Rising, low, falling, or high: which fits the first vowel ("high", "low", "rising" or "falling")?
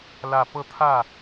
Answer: low